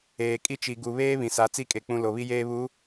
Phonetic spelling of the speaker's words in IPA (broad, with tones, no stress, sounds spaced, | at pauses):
eː˨ kʼ i˦ t͡ʃ i˨ ɡ u˨ β eː˦ β ĩ˨ s a˨˦ t͡s i˦ kʼ e˨ k͡p ũ˨ l o˨ β i˦ j eː˦ β u˨˦